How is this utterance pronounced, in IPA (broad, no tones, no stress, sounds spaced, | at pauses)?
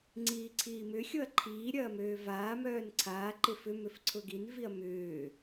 ŋ͡ǀ iː ǀʰ iː m ʏ xʲ o ɐ̯ ǃʰ iː ɾʲ ɐː m øː v aː m œː n ǀʰ aː ǃ ɪ f ʏ m ʏ f ǀʰ ʊ ɡ i n v i ɐ̯ m ʏː